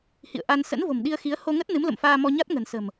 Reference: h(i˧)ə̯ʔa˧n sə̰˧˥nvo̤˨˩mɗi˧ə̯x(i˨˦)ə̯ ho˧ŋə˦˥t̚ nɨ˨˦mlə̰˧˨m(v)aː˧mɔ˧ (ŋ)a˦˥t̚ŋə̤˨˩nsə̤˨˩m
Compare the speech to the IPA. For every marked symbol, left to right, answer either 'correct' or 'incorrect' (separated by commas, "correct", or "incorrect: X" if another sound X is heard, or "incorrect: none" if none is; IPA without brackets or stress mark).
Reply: incorrect: ḭ˧˨, correct, incorrect: f, incorrect: ɲ